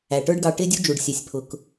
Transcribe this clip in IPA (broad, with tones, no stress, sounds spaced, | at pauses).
æ˨ ʈ ə˞˦ ɖ ɡ ɑ˧ ʈ ɪ˦ dʲ u˦ d͡ʒ u˨ ɖ sʲ ɛ˨ sʲ pʰ ʊ˨ k